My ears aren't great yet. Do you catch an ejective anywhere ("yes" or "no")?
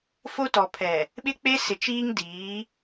no